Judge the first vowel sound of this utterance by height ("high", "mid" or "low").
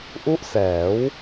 high